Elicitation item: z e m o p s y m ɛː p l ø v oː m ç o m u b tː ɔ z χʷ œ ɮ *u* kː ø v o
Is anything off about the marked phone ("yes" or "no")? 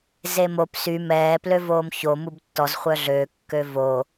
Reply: yes